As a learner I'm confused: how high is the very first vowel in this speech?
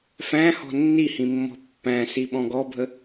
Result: low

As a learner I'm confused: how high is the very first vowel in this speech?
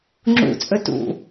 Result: high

